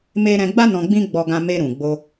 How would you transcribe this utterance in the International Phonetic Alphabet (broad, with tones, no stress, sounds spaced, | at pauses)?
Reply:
m e˦ ɾ ɛ̃˧ ɡ͡b a˦ n ɔ̃˧ ɡ͡b ĩ˦ ɡ͡b ɔ˧ ɡ ã˧ m e˧ ɾ ũ˨ ɡ͡b o˧